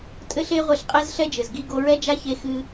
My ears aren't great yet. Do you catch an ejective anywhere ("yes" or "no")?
yes